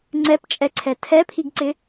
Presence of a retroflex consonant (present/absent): absent